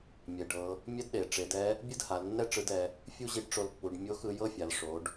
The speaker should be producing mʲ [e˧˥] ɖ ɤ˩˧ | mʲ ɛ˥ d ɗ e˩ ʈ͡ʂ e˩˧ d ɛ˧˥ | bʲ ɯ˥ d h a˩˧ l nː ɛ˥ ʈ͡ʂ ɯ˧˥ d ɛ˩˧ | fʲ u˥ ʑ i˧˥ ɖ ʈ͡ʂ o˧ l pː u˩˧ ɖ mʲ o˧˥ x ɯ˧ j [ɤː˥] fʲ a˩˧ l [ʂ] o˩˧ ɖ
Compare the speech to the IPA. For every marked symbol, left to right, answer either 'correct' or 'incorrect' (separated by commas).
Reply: incorrect, incorrect, correct